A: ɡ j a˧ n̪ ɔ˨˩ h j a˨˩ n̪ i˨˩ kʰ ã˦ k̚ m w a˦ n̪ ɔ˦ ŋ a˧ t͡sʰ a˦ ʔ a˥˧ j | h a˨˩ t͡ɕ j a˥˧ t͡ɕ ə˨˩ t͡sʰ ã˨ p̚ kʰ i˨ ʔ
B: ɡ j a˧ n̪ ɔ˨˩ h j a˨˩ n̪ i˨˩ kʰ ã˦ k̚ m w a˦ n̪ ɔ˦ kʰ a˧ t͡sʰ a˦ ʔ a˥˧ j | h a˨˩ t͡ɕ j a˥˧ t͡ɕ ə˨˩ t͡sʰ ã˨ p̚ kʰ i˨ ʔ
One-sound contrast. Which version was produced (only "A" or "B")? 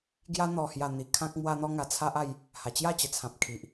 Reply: A